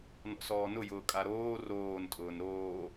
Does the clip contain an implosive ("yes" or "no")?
no